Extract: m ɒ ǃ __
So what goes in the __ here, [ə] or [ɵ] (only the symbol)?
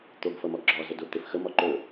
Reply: ɵ